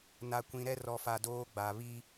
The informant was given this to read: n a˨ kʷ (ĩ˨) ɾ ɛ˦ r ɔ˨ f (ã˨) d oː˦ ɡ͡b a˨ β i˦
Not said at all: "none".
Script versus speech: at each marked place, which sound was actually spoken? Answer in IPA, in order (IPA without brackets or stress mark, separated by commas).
ĩ˨, a˨